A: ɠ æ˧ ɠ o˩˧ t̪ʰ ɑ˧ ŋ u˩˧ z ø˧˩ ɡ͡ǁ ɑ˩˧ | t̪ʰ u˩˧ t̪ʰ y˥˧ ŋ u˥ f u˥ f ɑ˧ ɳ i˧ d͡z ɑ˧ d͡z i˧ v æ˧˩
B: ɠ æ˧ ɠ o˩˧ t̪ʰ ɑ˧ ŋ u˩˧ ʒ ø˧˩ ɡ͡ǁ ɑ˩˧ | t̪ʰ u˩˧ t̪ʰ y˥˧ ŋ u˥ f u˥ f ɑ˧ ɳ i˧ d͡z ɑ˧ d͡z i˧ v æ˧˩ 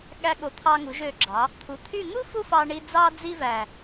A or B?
B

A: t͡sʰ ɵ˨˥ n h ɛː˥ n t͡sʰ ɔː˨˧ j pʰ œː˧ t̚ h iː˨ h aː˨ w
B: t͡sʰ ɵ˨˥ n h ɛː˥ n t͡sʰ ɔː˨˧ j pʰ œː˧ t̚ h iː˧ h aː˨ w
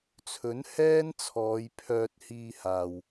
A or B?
B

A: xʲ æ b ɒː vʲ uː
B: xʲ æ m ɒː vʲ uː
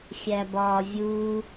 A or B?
A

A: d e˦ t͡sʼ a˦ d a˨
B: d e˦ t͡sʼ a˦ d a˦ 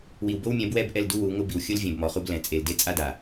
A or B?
A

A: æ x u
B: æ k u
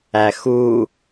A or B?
A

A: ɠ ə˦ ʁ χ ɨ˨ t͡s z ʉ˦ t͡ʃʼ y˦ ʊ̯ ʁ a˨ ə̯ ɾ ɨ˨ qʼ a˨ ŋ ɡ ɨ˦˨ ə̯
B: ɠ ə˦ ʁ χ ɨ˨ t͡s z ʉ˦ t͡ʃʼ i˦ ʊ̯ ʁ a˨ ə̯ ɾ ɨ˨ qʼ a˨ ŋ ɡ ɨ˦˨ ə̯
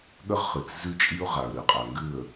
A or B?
B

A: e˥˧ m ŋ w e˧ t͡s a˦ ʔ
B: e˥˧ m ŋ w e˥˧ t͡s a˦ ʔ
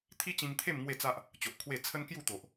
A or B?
B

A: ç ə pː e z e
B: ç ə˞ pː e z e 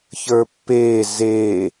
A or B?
B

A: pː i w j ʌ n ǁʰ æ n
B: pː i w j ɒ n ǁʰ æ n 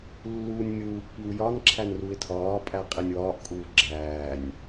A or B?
B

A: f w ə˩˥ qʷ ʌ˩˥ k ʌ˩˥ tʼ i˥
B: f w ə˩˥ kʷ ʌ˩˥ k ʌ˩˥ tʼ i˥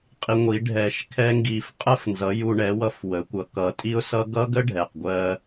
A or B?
B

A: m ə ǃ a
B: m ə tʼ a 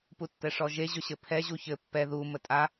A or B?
B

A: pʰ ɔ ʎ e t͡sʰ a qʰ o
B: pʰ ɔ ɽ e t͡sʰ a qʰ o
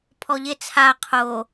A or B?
A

